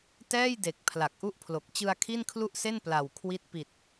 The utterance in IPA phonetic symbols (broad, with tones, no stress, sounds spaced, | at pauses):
t ɛː˥˩ j d e˨˩ k̚ pʰ l a˨˩ k̚ ʔ u˥˩ ʔ pʰ l o˨˩ k̚ t͡ɕ ɯ˧ a̯ kʰ i˥˩ n kʰ l u˥˩ ʔ s e˥˩ n p l a˨˩ w kʰ w i˦˥ t̚ p i˨˩ t̚